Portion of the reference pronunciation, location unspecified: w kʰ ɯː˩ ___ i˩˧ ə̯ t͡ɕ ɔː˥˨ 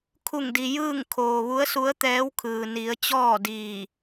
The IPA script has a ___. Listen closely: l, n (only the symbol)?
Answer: n